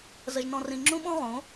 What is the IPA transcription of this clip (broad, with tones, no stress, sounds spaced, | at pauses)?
z ə˨ ʒ n ɔ̃˨ r ĩ˨ ŋ͡ǁ ũ˦ ɓ ɔ̃˦ ʁ õ˨˦